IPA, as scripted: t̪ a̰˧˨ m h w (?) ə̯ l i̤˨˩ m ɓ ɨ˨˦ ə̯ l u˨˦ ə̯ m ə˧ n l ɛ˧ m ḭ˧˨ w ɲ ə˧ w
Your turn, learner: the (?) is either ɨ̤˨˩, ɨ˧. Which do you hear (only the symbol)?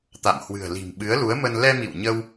ɨ̤˨˩